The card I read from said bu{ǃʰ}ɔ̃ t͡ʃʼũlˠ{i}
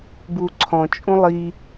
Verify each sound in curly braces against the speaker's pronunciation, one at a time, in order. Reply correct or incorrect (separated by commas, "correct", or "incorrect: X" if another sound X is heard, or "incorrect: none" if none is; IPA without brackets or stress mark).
incorrect: ǀʰ, correct